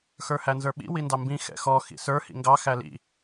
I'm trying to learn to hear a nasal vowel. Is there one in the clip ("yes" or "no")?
yes